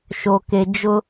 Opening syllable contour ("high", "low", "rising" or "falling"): low